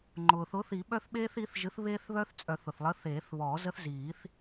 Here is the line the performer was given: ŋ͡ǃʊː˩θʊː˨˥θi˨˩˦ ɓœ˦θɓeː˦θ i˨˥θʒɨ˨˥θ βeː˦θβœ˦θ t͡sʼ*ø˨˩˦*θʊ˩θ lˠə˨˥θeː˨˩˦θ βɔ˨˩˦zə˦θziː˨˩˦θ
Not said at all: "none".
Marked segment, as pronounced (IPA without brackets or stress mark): œ˨˩˦